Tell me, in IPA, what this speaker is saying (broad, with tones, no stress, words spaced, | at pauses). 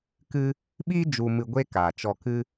kɨ˦ | ɓiː˦ d͡ʒu˧mɨ˧ɡʷe˦ kaː˨t͡ʃɔ˧kɨ˦